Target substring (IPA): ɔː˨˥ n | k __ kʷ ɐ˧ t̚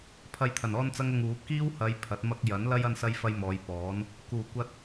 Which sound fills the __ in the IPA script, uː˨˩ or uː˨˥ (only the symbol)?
uː˨˩